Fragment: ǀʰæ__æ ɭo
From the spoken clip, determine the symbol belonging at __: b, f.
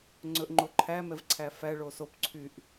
f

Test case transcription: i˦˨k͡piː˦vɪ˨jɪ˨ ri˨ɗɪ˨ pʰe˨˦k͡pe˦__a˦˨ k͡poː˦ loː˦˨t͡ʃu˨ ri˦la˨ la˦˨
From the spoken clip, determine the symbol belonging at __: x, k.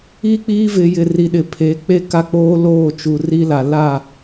k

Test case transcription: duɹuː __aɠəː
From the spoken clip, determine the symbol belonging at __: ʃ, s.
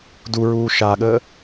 ʃ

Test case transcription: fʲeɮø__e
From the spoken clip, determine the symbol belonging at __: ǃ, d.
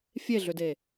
d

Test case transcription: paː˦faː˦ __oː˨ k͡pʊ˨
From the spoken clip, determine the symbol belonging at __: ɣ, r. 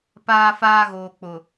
ɣ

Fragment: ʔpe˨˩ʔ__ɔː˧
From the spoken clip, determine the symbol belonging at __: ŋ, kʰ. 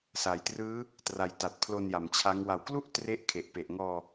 ŋ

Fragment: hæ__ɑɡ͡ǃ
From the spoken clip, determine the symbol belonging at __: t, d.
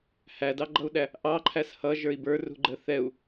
d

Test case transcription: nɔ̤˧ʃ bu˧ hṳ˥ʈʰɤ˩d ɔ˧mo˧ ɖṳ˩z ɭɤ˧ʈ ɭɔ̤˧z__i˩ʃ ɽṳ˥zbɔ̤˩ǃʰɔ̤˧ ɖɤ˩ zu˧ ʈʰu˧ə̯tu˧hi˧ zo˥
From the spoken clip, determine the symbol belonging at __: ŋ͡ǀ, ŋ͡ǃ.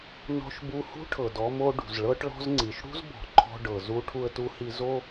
ŋ͡ǀ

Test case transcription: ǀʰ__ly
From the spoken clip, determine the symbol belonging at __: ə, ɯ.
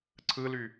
ɯ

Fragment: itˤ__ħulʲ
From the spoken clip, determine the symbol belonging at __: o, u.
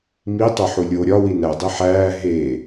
o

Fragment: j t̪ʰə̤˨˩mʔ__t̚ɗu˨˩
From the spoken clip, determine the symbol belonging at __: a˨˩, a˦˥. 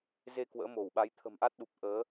a˦˥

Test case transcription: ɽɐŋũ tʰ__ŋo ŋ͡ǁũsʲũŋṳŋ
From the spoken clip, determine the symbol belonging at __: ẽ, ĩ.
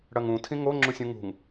ĩ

